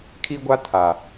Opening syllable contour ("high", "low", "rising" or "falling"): high